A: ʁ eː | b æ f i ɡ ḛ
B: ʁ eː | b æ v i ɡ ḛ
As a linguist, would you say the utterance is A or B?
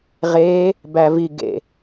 B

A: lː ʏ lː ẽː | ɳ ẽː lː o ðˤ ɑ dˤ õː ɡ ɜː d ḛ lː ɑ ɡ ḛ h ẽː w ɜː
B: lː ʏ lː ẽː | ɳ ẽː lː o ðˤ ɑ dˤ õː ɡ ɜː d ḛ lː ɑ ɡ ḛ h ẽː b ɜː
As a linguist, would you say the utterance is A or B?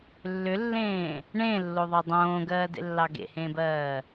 B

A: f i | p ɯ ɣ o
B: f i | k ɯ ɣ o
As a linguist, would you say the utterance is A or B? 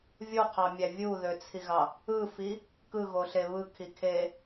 B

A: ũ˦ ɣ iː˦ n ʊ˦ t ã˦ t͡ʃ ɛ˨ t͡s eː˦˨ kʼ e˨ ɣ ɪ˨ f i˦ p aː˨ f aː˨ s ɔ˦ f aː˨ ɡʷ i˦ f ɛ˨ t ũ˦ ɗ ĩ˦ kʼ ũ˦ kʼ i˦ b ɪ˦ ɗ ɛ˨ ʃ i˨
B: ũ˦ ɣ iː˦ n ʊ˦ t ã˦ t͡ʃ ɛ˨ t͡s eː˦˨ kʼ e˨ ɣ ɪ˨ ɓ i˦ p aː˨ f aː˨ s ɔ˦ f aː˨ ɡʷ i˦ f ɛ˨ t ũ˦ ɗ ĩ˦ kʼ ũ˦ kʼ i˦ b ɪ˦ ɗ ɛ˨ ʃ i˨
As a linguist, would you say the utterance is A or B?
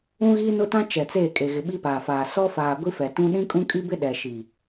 B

